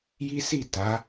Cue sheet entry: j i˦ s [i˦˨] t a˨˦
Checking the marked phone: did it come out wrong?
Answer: no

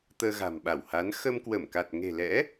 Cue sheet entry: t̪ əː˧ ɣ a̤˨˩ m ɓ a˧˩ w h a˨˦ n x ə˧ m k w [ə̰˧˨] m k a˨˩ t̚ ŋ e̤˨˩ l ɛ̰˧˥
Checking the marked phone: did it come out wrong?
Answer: yes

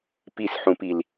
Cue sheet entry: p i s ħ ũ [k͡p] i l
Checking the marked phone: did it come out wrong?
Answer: yes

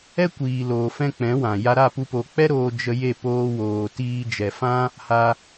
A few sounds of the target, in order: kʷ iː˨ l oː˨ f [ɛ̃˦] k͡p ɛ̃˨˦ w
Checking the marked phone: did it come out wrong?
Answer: no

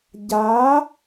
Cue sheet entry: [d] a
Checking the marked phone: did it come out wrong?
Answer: yes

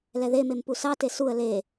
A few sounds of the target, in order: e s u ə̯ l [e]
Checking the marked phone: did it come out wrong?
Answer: no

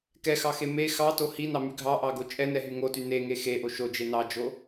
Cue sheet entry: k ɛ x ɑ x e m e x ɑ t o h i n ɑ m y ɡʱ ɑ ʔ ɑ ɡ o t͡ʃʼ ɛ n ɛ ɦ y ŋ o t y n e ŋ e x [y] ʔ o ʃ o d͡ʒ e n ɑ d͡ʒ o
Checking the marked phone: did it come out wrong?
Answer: yes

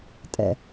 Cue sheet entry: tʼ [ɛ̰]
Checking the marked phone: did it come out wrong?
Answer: no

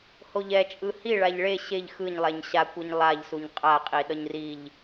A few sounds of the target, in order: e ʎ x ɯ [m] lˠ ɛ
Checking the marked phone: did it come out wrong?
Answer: yes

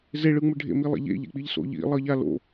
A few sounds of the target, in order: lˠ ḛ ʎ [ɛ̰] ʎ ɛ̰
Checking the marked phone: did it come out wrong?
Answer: yes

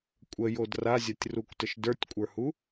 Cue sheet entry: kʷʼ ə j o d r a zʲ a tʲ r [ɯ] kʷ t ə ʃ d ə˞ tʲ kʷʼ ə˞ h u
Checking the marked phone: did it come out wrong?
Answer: yes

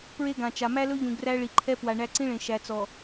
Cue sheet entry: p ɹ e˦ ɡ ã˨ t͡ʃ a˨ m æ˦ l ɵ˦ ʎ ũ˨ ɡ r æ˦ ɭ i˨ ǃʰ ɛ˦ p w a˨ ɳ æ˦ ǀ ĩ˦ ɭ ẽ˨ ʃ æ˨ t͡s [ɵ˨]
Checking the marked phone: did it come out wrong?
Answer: yes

